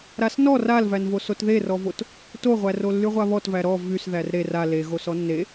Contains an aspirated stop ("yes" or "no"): no